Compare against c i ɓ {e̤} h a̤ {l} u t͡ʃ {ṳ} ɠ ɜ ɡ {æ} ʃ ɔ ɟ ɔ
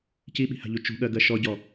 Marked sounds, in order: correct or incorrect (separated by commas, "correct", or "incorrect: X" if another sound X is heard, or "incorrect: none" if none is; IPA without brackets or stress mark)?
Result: incorrect: i̤, incorrect: ʎ, correct, incorrect: ɜ